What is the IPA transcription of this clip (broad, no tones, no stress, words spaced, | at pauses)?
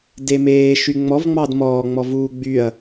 demeː ʃyŋ͡mɔvŋ͡mɑd mɔːŋ͡mɔ vuːɡ͡byɐ̯